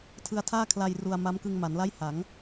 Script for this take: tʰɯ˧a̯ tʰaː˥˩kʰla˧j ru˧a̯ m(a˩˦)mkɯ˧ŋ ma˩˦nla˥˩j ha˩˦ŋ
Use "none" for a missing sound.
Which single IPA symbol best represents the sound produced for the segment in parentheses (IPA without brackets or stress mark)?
a˦˥